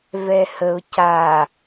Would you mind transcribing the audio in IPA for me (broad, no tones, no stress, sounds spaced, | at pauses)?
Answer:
v ɛ h ə ʊ̯ c a